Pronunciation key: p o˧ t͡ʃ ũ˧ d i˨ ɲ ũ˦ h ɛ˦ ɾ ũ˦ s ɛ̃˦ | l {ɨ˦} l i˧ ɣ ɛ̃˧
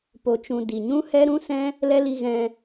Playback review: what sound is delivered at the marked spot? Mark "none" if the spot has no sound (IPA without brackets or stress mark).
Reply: ɛ˦